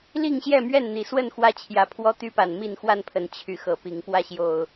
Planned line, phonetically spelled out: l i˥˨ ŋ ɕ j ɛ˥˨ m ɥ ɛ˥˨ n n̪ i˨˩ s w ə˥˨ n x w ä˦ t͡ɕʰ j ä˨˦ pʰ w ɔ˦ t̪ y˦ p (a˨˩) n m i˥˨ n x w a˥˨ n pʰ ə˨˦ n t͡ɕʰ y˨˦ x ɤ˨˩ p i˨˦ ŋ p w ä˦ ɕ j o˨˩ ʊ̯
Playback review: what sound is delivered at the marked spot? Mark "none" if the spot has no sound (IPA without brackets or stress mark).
a˨˩